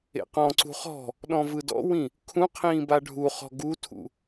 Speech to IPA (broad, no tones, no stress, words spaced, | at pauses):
ḛqɔ̃ǀṳ χɔ̤ | ɗɔ̃vɯdɔ̰wĩ | kʰũqʰĩː baɖʱuχɔ̤ ɡutʰṵ